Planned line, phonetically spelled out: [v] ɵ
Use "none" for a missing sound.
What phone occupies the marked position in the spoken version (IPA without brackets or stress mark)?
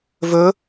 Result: v